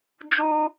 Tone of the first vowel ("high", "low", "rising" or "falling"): high